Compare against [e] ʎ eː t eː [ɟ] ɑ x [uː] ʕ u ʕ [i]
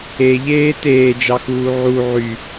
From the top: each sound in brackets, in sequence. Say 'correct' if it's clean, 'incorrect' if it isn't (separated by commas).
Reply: correct, incorrect, correct, incorrect